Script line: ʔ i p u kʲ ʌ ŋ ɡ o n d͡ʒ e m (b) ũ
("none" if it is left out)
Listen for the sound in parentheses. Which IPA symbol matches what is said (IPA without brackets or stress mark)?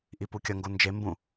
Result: b